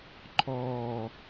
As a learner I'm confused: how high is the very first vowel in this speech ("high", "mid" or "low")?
mid